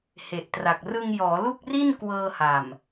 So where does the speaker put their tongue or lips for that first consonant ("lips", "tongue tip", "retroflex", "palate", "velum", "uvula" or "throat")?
throat